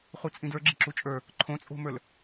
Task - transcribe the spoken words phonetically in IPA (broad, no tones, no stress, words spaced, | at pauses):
χut͡sʼĩdə˞ ɡ͡ǁi̤ǁut͡ʃʼə˞ | ǃʰõt͡sʼo̤mə˞l